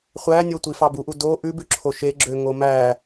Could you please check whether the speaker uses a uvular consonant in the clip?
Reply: yes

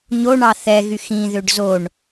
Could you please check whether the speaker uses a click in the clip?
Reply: no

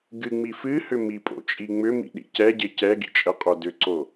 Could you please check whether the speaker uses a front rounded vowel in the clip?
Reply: yes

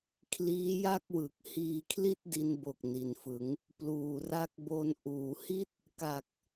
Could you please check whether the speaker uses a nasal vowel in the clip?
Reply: no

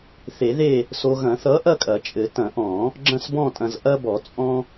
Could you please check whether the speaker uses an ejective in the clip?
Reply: yes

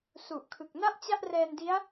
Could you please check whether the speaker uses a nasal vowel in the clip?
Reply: no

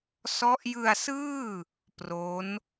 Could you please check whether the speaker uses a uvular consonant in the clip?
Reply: no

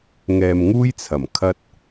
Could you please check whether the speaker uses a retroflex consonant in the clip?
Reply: no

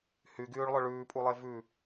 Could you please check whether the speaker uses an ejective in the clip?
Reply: yes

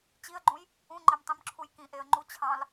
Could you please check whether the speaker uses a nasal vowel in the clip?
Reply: yes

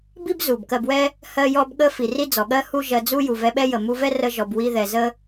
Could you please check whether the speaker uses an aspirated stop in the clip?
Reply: no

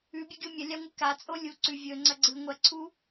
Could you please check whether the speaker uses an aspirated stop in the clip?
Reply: yes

